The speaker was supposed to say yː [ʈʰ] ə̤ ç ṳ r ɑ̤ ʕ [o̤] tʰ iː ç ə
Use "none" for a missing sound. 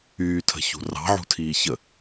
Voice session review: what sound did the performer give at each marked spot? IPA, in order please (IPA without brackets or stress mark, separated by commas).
tʰ, ṳ